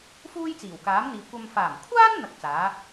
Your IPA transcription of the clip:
f uː˥ j t͡s iː˨˩ w k aː˨˥ m n̪ iː˨ kʷ ɐ˨ m f aː˨˩ m kʷʰ aː˥ n n̪ ɐ˧ k̚ t͡s aː˨˥

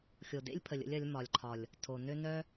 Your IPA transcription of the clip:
xʲ o˨ d ḛ˦ lʲ pʰ ə˨ lʲ ə̰˧ lʲ ɐ˨˦ lʲ m ɒ˨ lʲ ǃʰ ɒ˨ lʲ | tʰ o˨ n ø˦ n œ˦

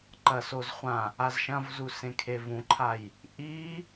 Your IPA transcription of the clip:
ǃ ɐ s o z χʷ ã | a z ʃ ɐ̃ v z u s ẽ kʰ e v ũ ǃʰ a j | ʔ i

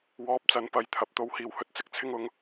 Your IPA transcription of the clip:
w ɔː˧ p̚ t͡s ɐ˨˧ n p ɐ˨˧ j t̪ʰ ɐ˨˥ p̚ t̪ o˨˧ w h iː˨ w h ɵ˧ t̚ t͡s ɪ˧ k̚ t͡sʰ ɪ˧ ŋ ʊ˨˧ ŋ

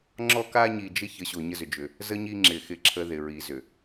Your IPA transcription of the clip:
ŋ͡ǁ ɔ˦ k a˦ ɲ i˨ d͡ʒ ɪ˦ ç ə˨˦ ɕ o˨ ɲ ə˦ z ʏ˨ d͡ʒ ʏ˨ | z ə˦ ɲ i˦ ŋ͡ǁ ɪ˨ x ɪ˦ ǁʰ ə˦ ð ɪ˨ ɹ i˨ z ʏ˨

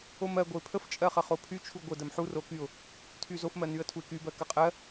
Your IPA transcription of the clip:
o m ɜ ɡʷ ə ɪ̯ pʰ ə f t͡ʃʼ ɜ χ ə χ o pʰ y t͡ʃʰ u ɡʷ ə d ɜ m ħ u r o k y ʊ̯ | tʰ y z o f m ɜ n y ə̯ tʰ u ɪ̯ k y b ɜ k ə qʼ ɜ

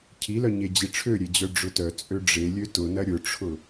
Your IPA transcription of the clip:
cʰ i l œ ɲ e d͡ʑ i ʈ͡ʂʰ ø ɾʲ e d͡ʑ œ ɖ͡ʐ ʊ t œ t͡sʼ ø ɖ͡ʐ e lʲ ø t ʊ n ɐ ɾʲ ʊ ʈ͡ʂʰ ʊ

